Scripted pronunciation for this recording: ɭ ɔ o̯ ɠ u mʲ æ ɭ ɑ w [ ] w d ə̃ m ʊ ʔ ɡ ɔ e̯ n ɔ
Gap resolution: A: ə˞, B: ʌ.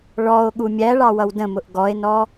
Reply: B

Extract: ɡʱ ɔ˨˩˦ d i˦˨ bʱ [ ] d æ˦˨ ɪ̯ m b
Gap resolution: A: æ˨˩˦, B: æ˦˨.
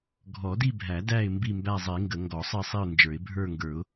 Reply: A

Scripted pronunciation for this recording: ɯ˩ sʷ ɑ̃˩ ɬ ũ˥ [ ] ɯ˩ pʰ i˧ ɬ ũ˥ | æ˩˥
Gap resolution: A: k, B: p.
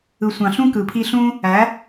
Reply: A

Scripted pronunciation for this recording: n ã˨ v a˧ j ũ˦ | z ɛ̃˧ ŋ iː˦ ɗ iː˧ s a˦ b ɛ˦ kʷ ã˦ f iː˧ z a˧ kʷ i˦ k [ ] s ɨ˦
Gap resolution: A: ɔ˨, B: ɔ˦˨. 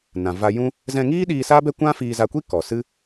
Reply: A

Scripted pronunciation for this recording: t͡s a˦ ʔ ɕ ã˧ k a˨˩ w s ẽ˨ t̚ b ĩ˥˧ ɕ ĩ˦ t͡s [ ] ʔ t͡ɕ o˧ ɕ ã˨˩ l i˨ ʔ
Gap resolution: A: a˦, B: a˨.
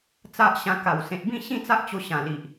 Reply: A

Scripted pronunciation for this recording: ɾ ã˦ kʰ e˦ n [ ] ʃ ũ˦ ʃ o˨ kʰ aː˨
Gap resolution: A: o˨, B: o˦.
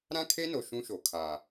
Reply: A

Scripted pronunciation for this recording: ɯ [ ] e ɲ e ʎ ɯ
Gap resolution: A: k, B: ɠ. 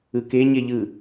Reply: A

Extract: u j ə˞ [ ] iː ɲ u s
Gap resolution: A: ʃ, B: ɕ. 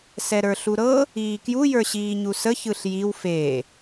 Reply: B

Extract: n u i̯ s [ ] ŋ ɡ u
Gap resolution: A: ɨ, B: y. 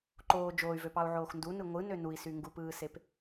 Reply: B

